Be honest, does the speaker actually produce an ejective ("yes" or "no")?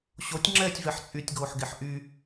yes